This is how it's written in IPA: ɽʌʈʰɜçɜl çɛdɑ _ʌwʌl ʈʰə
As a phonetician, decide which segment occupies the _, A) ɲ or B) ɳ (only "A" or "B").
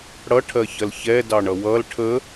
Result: B